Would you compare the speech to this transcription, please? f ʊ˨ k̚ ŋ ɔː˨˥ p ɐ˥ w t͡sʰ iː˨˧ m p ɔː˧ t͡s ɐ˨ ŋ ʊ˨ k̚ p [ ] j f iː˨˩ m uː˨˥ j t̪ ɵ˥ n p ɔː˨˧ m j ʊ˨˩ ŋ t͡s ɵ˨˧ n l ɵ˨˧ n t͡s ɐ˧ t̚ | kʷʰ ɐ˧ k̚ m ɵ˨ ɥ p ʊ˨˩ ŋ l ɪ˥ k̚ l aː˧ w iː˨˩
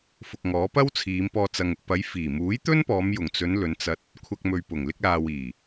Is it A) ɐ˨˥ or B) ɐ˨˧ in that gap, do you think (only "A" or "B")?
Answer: B